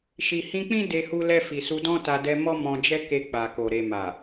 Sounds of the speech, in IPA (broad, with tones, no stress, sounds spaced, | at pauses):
ʃ i˨ h ĩ˧ k͡p ĩ˦ d e˧ h u˧ l ɛ˧ f i˨ s u˧ d ɔ̃˦ t a˧ d ɛ˧ m ɔ˦ m ɔ̃˧ d͡ʒ ɛ˦ k e˧ k͡p a˨ k o˨ ɾ e˨ m a˨